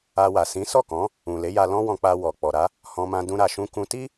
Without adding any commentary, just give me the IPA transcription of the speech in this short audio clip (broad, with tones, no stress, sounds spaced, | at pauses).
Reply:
a˧ w a˨ s ĩ˨˦ s ɔ˦˨ k ɔ̃˨˦ | ũ˨ l e˨˦ j a˧ l ɔ̃˦ w ɔ̃˧ k͡p a˧ w ɔ˨ k͡p ɔ˨ ɾ a˨˦ | h ɔ̃˧ m ã˧ d ũ˧ ɾ a˨ ʃ ũ˧ k ũ˧ t i˦